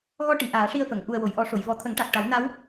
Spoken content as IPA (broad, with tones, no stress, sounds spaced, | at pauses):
ɣ ɔ˧ ʈ i˨˩˨ ʔ aː˨˩˦ ʂ i˧ ə̯ f ə˨˩˨ ŋ ʔ u˨˩ ə̯ w o˨˩˨ j ʔ ɔ˨˩˦ ʂ o˨˩˨ j v ɔ˨˩˦ t̪ʰ ə˨˩˦ ŋ ʈ a˨˩ k̚ ʈ a˨˩˦ w n a˧˥ w